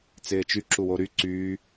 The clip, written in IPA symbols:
t͡s ɪː t͡ʃ y ǁ u w o ɾ y ǀ yː

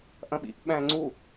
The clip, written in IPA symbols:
ʔ ɐ̃ ɓ ḭ ʔ ɓ æ̃ ŋ͡ǀ u

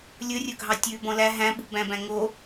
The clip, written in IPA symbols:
lʲ ɵ rʲ ɵ ɡʱ ɑ tʲ ʉ b ɔ̃ l æ ɦ æ̃ ɓ ṳ b æ̃ b æ̃ ŋ o

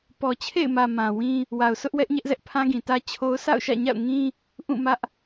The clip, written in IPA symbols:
p ɔ˨ t͡ɕʰ ḛ˦˨ ɪ̯ m ä˨ m ã˨ w ĩ˦ | w a˨ ʊ̯ sʰ ʊ˦ ʔ w ɛ˦ ʔ ɲ ɛ˦ ʔ z ɛ˦ ʔ pʰ ã˦ ɡ ĩ˨ t ä˦ t͡ɕʰ o˦ ʊ̯ sʰ a̰˦˨ ʊ̯ ʃ ä̰˦˨ ɲ a̰˦˨ ʊ̯ ŋ ĩ˦ | ʔ ũ˦˨ m ä˦ ʔ

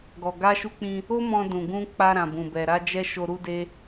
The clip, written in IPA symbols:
ɡ ɔ˨ ɡ a˧ ʃ u˧ k͡p ĩ˧ | o˦ m ɔ̃˧ d ũ˨ ɡ ũ˧ k͡p a˧ ɾ ã˨ b ũ˨ b ɛ˨ ɾ a˧ d͡ʒ ɛ˧ ʃ o˧ ɾ u˦ d e˦

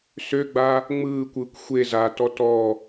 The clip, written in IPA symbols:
s ø ɡ͡b a | ŋ͡m ɯː kʷ ɯː kʷ xʷ e z a t ɔ t ɔ

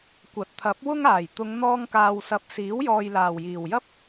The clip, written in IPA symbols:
kʷ ɐ˨ t̚ t̪ʰ ɐ˨˥ p̚ w ʊ˥ ŋ aː˨˩ j t̪ ʊ˨˧ ŋ n̪ ɔː˧ ŋ k aː˨ w s ɐ˨˥ p̚ s iː˨˥ w j ɔː˨ j l aː˨˩ w j iː˨˩ w j ɐ˥ p̚

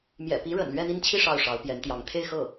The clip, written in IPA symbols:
m j ɛ̰˨˩ p i˧˥ ɻ ə̰˨˩ n l ɥ ɛ˥˧ n̪ i˥˧ n t͡ɕʰ i˥˧ ʂ ɑ˥˩ ʊ̯ ʂ ɑ˧˥ ʊ̯ p j ɛ˧˥ n t̪ j ɑ˧˥ ŋ t̪ʰ e˥˧ ɪ̯ x ɤ˥˩

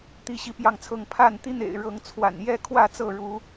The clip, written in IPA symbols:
t̪ i˨˦ ɕ i˨˦ p j ɑ˥˨ ŋ t͡sʰ ɤ˥˨ ŋ pʰ a˥˨ n t̪ i˦ n̪ ḛ˨˩ ɪ̯ ɻ ɤ˨˦ ŋ t͡sʰ w a̰˨˩ n j ɛ˦ kʰ w ä˥˨ t͡s ɤ˥˨ ɻ u˨˦

